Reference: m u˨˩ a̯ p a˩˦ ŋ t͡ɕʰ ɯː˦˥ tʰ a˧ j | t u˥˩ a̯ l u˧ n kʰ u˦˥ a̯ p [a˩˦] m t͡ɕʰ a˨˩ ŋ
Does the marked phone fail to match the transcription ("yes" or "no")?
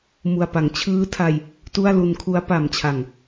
yes